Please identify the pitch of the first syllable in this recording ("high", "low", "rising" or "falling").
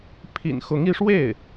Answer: low